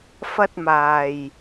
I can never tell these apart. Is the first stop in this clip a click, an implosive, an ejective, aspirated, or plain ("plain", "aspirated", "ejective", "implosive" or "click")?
plain